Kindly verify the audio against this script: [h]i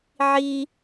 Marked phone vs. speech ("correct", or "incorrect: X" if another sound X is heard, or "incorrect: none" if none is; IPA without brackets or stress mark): incorrect: ʕ